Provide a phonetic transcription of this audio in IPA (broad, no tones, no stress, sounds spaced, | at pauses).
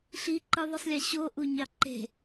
ɬ i ǃ ɯ ðˤ ɯ sˤ lʲ e ɕ o ʔ u ɲ ɑ ǃ e̤